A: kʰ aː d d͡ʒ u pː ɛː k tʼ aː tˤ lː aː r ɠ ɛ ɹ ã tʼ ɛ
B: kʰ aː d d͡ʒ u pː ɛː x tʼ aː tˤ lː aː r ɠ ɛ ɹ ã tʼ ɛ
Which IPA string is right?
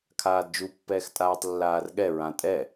B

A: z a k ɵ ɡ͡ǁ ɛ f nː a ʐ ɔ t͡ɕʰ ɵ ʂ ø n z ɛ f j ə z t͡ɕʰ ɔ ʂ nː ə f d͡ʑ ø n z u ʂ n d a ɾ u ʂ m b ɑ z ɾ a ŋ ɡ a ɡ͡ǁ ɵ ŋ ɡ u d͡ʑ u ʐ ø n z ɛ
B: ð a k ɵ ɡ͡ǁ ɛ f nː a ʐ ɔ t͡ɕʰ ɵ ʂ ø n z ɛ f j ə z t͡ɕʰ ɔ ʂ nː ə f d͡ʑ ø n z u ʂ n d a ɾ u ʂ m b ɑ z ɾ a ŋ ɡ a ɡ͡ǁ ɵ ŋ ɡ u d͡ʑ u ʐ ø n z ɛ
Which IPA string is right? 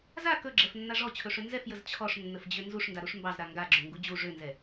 A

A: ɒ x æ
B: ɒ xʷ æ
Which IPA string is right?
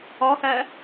A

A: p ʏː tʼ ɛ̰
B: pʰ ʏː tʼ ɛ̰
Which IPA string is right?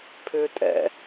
B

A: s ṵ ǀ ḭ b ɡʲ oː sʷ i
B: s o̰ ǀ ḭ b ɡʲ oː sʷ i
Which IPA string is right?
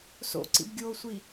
B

